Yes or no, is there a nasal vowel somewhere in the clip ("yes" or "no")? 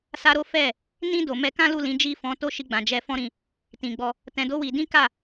yes